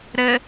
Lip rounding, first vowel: unrounded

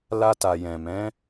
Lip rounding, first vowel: unrounded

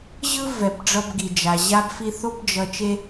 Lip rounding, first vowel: unrounded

